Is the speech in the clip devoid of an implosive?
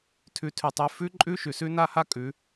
yes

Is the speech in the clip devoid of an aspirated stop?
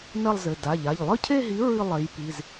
no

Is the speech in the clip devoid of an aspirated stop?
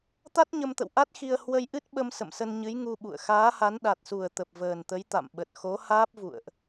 yes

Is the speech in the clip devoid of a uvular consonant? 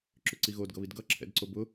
yes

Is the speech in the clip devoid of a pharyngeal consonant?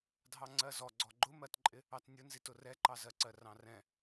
yes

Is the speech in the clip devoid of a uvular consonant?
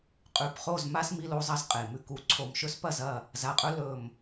no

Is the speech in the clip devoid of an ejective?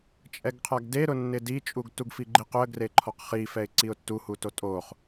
no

